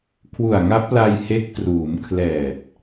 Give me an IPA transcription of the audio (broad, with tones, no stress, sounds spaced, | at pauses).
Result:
kʰ w u˨˩ a̯ ŋ a˦˥ p̚ l a˧ j h e˦˥ k̚ t r uː˩˦ m kʰ l ɛː˨˩ t̚